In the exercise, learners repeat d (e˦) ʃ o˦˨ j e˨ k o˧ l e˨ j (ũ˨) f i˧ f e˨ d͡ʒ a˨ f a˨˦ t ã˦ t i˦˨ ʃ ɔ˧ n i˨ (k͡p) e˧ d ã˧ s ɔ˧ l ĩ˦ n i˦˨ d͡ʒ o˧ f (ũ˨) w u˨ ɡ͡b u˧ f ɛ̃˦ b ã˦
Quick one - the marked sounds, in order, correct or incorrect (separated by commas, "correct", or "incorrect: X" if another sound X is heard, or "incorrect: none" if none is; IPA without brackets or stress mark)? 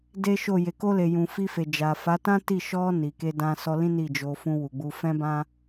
correct, correct, incorrect: k, incorrect: ũ˧